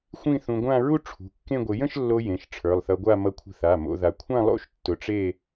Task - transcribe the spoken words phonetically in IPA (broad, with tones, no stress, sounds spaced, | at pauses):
xʷ ĩ˥˧ θ ũ˧ ɡʷ ã˥˧ ɹ u˥˧ ʈ͡ʂʰ ṳ˩˧˩ kː ẽ˥˧ ɡʷ ɪ˧ j ə̃˥˧ ʃ lː o˧ j ẽ˩˧˩ ʃ ʈ͡ʂʰ ə˞˩˧˩ lˠ θ ʌ˧ ɡʷ a˥˧ m ʌ˧ kʷʰ ə̤˧ θ a˩˧˩ m o̰˧ ð a˧ kʷʰ ã˥˧ lˠ o̰˥˧ ʃ tː ʊ˧ ʈ͡ʂ e˥˧